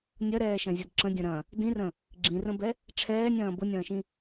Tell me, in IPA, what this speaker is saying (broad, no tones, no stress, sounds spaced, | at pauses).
nʲ ɐ ɾ ɛː ʃ ɐ̃ zʲ ɐ d ǁ ə̃ dʲ ɐ̃ ɾ ɐ̃ | d ĩ r ə̃ | ɡ͡ǁ ĩ r ə̃ b ɛ | ʈ͡ʂʰ ɛː nʲ ɐ̃ː b ʊ nʲ ɐ̃ː ʃ ĩ